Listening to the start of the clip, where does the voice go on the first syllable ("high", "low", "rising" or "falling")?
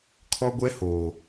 high